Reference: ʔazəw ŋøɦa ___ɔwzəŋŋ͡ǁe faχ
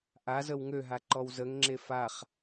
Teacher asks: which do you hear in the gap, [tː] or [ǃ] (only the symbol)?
ǃ